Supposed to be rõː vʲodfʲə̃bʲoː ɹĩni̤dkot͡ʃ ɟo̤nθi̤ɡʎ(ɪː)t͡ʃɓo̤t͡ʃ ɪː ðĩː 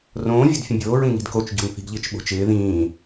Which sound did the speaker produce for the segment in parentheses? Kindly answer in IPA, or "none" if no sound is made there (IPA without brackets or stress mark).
ɪː